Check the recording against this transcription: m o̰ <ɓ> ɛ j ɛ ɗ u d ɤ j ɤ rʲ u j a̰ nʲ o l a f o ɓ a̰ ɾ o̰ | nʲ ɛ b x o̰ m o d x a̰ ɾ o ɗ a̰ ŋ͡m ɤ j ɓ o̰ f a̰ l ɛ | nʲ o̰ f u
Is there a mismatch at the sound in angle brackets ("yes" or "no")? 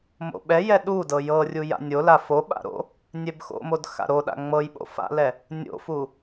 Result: no